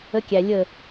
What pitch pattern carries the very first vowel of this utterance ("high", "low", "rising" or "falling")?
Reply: rising